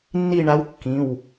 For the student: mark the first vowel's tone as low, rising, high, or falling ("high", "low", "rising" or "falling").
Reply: falling